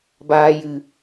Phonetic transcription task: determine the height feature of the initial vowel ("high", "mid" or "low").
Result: low